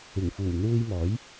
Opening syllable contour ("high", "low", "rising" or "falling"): low